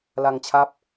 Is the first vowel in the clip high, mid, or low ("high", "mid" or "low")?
low